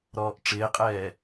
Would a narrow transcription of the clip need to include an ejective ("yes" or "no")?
yes